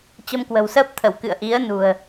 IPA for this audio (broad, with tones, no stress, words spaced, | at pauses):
t͡ɕə˧mkwə̤˨˩wsəː˦˥p̚t̪ʰə˧˩w kɨ̰˧˨ə̯ʔi˨˦ə̯ nṳ˨˩ə̯